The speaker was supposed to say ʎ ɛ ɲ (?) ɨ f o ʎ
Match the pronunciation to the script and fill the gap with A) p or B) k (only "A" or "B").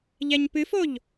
A